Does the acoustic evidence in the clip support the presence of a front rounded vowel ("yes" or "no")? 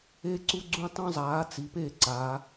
no